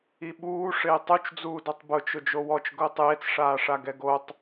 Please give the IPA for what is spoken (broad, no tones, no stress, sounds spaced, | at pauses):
i ɓ uː ʂ ɪː tˤ u t͡ʃ d͡z uː d o tˤ b ʊ t͡ʃ ʊ d͡ʒ o w ɔ t͡ʃ ɡ ʊː tˤ j e t͡s ʂ aː ʂ a ɡ ɛ ɡ o tˤ